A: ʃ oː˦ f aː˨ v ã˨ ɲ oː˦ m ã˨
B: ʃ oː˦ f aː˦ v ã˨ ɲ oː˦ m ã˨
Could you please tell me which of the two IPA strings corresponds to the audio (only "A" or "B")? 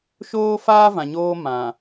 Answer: B